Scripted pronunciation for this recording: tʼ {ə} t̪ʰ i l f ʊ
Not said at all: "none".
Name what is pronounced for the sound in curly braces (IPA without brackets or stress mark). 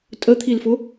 ə